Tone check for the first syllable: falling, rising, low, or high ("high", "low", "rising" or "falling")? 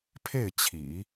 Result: falling